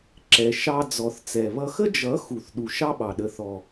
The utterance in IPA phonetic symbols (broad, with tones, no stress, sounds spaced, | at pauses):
ǁ ɛ˨ ʃ ɑ˧ d͡z ɔ˨ θ t͡s ɛ˨ β ʌ˦ x ə˦ d͡ʒ ʌ˨˦ x u˨ θ ɗ u˨ ʃ ɑ˦ ɓ ɑ˨ ɗ ə˨ θ ɔ˨